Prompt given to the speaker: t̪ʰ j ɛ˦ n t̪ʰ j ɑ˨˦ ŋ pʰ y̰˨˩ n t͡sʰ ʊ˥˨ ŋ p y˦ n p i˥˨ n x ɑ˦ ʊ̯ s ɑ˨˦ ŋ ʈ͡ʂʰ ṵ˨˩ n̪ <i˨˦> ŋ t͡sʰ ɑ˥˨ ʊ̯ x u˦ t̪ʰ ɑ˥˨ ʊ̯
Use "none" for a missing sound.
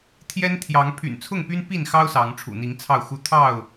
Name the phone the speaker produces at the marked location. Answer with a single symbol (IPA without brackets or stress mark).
i˨˦